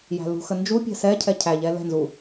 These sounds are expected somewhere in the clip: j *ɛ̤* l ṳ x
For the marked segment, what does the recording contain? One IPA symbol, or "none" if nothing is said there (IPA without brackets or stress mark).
æ̤